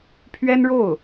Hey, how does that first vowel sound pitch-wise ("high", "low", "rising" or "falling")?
high